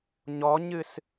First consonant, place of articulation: palatal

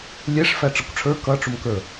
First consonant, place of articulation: alveolar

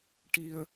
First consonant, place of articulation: retroflex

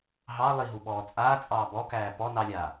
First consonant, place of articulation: glottal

